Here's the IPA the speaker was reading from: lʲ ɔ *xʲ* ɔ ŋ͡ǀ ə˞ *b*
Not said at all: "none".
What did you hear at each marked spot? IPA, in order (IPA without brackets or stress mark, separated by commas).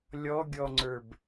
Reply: ɡʲ, b